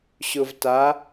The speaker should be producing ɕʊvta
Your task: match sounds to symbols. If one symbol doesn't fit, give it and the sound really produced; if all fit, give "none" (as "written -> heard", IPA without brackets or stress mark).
none